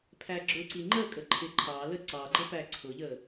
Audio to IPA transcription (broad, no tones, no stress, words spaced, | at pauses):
pʰæɡ͡ǁʊǀi ŋ͡ǃəkʼə ǃʰɪǃʰɑlə ǀɑɡ͡ǃə pæǀʰʊʎə